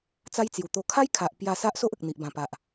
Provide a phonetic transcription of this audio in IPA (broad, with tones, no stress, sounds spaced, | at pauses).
t͡s a˦ j t͡s j u˨˩ t̪ o˧ kʰ a˦ j kʰ a˨ ʔ p j a˥˧ s a˦ ʔ s o˦ ʔ ə˨ k̚ n̪ i˨ ʔ b ã˨˩ p a˨ ʔ